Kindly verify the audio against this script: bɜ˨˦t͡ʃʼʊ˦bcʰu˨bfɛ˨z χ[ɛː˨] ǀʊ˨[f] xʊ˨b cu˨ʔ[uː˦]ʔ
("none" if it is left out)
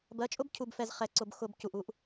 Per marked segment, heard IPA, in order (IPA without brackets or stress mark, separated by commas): ɛ˨, b, u˦